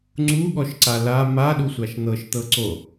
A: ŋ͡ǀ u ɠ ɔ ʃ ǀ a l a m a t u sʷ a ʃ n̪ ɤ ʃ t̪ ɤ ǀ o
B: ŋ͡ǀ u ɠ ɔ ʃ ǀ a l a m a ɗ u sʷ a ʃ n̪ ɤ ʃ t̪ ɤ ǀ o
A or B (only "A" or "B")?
B